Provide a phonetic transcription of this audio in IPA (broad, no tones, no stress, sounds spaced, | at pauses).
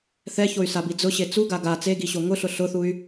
θ ɛ ç o y̯ s a b i d͡z ʊ ɕ e t͡s u ɡ a ɡ a t͡s e ɡ i ɕ o ŋ ʊ ɬ ʊ ɬ ʊ θ u y̯